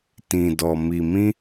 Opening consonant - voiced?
no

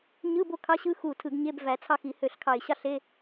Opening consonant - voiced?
yes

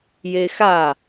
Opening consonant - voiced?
yes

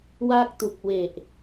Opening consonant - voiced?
yes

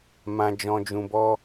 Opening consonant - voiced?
yes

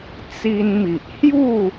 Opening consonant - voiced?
no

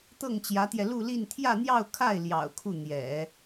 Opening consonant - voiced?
no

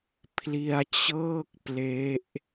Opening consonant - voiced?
no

